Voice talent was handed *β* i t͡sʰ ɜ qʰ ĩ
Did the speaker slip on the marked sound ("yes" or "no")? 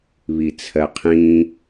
no